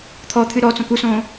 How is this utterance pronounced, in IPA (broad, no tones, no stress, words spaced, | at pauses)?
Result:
t̪ʰɔt̪ʰɨ ɾɔt͡sõk usõː